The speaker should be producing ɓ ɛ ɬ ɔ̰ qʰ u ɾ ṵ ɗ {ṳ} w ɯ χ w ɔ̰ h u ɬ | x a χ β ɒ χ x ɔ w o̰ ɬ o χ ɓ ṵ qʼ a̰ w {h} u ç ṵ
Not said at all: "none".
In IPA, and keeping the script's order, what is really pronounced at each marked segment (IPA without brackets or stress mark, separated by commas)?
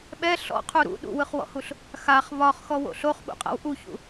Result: ṵ, ʔ